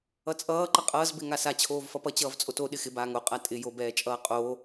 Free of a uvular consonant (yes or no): no